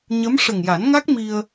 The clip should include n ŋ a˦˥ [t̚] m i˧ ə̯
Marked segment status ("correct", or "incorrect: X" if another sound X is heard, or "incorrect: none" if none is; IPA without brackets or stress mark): incorrect: k̚